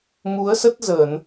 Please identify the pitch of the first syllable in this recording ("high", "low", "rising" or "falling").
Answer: rising